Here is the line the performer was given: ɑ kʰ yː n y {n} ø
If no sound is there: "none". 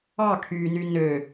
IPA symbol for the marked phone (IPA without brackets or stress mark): n